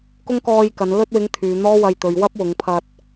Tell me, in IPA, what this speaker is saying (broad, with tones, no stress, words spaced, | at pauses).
kʊ˥ŋkɔː˧jkɐ˨˧n lɵ˧t̚wɪ˨˧ŋ t̪ʰyː˨ n̪ɔː˥wɐ˧jt̪ɵ˨ɥ wɐ˥p̚wʊ˨˧ŋpʰɐ˧t̚